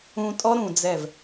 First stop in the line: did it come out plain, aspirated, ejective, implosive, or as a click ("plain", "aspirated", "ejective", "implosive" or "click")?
ejective